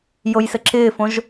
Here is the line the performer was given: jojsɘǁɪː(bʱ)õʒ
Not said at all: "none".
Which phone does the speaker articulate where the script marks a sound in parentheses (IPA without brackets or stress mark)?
f